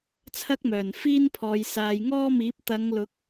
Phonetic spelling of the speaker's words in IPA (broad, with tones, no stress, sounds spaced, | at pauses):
t͡sʰ ɐ˥ k̚ m œː˨˩ n f iː˥ n pʰ ɔː˨ j s aː˨ j ŋ ɔː˥ m iː˨˥ p̚ t̪ ɐ˨˧ ŋ l ʊ˨˥ k̚